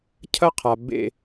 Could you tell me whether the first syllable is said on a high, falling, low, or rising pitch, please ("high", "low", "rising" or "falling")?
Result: falling